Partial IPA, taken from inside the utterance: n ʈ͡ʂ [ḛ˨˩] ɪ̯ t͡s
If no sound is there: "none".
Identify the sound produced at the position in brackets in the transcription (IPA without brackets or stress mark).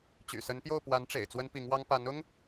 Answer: ḛ˨˩